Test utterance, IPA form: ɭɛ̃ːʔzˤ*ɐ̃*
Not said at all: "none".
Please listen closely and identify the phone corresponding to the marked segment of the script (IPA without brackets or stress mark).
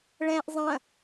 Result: ɐ̃